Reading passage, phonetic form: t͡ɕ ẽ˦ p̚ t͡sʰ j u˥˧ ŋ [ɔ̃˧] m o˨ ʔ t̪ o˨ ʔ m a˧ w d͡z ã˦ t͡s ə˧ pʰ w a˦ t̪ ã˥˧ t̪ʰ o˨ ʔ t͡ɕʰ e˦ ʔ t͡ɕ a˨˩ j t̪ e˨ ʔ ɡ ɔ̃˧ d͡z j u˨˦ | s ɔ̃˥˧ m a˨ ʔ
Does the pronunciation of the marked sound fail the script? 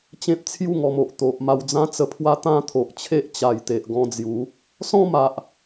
yes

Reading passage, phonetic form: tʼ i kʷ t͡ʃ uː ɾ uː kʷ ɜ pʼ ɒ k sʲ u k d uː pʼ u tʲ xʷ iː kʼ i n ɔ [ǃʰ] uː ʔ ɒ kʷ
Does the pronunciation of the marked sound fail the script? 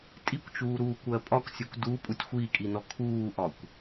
yes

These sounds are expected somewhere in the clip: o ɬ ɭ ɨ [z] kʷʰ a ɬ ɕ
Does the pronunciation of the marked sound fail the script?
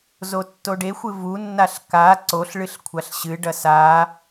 yes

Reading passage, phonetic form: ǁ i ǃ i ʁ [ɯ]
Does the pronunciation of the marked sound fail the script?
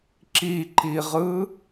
no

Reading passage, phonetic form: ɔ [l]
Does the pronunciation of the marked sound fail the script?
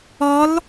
no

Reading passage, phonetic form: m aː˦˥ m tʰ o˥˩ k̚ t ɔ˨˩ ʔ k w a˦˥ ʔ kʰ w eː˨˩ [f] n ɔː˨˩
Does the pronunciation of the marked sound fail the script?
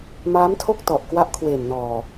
yes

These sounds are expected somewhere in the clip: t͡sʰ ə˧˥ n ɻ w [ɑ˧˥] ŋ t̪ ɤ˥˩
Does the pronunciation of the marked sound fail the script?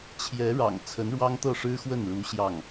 yes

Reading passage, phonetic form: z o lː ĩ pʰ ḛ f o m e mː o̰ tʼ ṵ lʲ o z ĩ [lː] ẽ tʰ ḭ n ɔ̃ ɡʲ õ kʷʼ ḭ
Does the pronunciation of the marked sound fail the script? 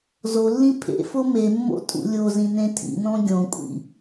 yes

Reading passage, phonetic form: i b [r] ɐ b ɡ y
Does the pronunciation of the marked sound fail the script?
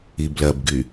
yes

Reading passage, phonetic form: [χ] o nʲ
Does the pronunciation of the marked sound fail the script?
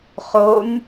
no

